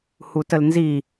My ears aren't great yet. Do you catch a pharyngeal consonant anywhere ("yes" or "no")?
no